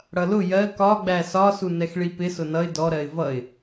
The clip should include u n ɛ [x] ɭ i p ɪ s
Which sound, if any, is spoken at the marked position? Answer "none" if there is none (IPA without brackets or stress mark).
x